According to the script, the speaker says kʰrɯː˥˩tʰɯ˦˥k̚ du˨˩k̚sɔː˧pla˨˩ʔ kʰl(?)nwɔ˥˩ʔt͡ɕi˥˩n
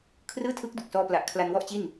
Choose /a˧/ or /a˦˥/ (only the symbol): a˧